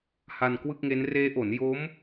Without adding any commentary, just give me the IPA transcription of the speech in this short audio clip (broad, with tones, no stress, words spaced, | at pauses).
ha˧nkwɯ˥˩k̚ŋe˦˥n reː˦˥ʔo˩˦n jo˦˥m